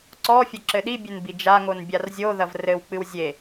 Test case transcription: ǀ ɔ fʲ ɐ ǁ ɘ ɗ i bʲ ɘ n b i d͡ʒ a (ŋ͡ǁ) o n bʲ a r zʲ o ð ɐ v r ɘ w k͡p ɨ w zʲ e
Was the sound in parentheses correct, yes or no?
no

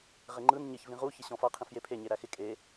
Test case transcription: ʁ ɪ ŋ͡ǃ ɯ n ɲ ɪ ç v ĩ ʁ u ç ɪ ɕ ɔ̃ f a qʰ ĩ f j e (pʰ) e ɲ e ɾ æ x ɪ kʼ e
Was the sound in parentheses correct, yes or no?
yes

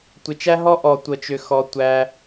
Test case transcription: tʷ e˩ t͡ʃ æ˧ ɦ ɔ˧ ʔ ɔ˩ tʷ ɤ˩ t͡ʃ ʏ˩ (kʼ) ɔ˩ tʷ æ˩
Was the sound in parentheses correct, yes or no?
no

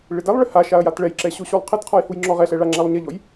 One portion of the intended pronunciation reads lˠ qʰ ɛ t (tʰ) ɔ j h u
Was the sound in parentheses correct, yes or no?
no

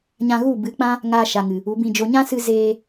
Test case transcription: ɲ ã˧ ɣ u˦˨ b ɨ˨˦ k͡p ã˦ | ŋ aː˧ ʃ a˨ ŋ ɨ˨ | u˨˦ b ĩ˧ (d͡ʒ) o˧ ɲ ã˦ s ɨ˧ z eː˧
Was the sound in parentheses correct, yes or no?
yes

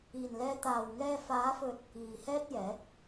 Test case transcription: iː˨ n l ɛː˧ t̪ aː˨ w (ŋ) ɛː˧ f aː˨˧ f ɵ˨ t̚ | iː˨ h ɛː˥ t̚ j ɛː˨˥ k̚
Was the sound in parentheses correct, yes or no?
yes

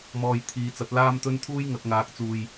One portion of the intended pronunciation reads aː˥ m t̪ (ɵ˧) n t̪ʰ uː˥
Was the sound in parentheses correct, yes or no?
no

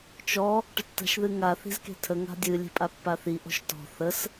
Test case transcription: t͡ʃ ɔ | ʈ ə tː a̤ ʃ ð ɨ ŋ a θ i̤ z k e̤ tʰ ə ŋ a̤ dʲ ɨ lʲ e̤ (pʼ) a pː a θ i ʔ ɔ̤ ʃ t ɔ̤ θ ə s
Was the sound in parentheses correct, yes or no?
yes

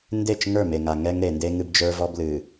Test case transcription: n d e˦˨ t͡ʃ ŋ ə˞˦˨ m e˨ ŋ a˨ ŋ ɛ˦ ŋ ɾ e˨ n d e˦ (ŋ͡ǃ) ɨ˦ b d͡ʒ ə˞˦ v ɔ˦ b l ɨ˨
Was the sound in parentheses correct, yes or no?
no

